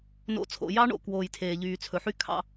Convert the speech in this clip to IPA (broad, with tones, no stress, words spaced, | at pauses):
no̰˨˦t͡sʰo̰˨ jɑ˦ɳo̰˨ kwoː˨jtʰeː˨ʎyː˨t͡sʰɵ˨ ħy˦kʰɑ̰˦